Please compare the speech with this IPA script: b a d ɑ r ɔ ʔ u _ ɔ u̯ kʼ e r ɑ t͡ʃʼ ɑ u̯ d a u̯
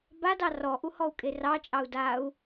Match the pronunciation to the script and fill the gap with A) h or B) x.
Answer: A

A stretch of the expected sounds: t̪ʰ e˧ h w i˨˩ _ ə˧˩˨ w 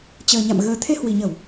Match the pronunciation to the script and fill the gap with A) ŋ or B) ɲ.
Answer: B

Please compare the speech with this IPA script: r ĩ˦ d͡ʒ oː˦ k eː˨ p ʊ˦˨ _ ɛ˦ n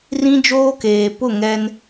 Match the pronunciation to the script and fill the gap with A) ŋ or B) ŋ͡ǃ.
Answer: A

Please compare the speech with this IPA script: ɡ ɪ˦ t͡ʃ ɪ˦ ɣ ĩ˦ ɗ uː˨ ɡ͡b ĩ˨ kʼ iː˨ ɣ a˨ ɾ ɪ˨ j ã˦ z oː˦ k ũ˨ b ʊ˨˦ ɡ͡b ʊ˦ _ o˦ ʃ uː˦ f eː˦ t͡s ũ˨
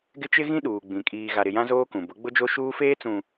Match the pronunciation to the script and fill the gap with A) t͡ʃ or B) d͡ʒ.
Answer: B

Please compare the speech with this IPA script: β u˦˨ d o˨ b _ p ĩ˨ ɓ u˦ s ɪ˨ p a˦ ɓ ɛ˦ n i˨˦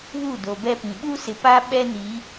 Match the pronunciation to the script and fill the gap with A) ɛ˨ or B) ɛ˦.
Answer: B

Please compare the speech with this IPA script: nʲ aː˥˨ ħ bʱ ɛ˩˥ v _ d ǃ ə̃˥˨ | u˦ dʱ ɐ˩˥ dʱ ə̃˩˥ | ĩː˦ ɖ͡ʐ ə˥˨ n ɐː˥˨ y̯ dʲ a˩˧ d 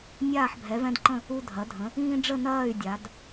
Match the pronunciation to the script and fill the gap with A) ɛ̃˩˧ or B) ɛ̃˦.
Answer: B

